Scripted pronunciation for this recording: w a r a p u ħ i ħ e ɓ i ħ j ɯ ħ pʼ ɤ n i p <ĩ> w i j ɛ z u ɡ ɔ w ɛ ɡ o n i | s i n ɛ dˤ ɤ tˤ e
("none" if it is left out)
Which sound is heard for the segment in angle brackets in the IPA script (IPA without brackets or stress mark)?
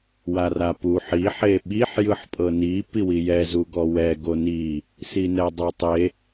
i